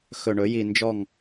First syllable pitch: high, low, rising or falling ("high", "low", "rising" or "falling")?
low